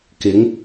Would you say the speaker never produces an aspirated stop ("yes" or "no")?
yes